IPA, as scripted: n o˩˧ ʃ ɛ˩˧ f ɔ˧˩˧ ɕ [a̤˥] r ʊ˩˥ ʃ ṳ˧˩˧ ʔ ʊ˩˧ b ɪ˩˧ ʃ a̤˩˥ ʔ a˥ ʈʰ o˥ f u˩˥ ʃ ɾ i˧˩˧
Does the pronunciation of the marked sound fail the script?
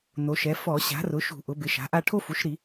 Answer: yes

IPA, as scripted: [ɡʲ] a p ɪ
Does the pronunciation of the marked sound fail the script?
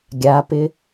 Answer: no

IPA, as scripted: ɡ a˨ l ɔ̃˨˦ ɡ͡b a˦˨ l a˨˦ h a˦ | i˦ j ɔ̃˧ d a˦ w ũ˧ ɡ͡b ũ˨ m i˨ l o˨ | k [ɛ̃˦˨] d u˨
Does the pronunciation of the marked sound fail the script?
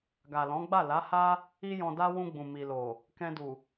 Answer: yes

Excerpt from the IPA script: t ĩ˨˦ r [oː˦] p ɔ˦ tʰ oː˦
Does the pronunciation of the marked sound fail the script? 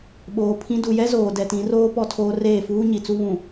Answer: no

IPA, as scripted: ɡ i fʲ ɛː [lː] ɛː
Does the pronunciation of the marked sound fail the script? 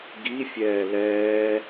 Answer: yes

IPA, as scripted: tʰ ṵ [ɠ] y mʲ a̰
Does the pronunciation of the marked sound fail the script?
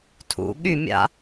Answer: no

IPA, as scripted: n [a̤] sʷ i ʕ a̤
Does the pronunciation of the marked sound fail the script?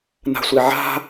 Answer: no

